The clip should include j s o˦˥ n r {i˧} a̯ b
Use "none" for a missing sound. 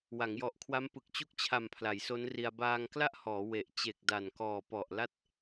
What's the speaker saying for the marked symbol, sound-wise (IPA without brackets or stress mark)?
i˧